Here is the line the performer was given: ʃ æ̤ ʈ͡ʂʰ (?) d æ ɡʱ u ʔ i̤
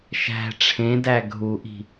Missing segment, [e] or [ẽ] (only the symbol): ẽ